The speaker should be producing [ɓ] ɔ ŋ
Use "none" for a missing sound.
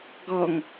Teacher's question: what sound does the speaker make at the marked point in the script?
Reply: ɡ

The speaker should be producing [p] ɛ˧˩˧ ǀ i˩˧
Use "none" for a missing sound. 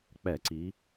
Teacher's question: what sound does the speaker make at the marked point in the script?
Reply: k͡p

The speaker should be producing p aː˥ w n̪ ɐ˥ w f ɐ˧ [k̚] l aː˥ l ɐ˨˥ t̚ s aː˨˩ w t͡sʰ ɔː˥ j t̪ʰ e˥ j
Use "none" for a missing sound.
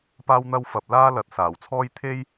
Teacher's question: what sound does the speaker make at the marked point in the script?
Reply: p̚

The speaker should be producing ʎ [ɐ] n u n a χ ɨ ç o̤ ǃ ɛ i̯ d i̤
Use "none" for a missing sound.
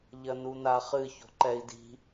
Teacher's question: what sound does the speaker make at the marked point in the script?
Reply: ɐ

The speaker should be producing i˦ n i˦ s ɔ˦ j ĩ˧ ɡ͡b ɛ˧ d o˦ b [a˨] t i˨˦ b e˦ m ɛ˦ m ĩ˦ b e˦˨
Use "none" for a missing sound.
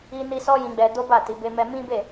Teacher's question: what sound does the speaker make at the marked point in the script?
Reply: a˦˨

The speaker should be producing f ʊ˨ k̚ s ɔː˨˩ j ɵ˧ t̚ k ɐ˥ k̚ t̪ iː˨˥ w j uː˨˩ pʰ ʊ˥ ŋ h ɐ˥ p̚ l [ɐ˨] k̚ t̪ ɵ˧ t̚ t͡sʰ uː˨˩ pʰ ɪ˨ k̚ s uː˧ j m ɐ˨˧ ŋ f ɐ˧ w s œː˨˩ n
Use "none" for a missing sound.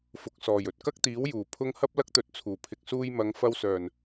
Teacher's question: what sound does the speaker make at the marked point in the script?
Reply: ɐ˥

